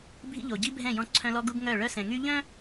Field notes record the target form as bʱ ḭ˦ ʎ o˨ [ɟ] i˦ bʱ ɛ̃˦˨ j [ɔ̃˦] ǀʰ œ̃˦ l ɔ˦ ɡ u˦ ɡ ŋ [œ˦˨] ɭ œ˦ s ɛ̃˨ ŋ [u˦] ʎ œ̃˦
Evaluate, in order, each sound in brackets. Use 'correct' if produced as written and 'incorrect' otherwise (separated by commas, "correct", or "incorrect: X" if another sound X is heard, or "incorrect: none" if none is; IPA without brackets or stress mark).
correct, correct, correct, incorrect: y˦